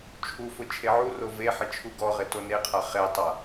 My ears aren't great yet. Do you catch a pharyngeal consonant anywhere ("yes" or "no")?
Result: yes